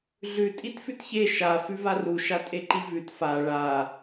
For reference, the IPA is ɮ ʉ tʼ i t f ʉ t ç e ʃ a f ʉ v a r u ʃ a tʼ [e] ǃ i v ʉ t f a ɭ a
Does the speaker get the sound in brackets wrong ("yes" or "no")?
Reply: no